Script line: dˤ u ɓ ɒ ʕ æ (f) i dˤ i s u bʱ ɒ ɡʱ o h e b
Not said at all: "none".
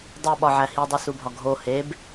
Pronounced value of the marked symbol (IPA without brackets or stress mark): h